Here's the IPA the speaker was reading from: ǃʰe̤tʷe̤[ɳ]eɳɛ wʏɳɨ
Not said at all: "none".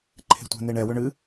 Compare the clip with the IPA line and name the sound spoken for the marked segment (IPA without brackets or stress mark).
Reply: n